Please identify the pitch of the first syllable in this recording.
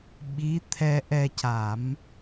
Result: rising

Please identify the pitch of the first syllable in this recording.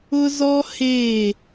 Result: high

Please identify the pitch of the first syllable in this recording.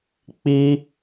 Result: high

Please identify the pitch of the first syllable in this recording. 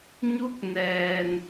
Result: rising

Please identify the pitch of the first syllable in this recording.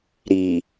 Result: low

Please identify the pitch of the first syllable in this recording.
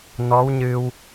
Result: rising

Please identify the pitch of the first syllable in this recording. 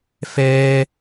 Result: high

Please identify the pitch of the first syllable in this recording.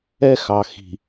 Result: high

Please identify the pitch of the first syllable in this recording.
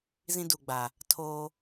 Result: high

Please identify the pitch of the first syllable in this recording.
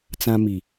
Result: high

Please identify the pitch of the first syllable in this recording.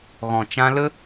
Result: low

